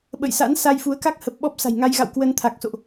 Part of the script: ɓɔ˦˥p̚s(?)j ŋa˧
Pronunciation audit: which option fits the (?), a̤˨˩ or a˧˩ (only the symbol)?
a̤˨˩